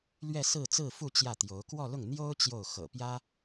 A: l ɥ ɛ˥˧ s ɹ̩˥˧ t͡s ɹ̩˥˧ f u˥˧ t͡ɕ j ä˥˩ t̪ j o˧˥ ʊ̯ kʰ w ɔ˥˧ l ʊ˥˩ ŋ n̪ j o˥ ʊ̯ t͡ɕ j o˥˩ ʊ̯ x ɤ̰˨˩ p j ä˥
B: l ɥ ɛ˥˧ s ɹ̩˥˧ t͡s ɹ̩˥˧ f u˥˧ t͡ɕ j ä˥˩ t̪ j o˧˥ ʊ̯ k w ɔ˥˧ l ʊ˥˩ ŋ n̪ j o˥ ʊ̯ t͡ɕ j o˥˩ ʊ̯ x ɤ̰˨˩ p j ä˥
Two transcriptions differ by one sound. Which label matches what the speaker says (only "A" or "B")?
B